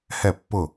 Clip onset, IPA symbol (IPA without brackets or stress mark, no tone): h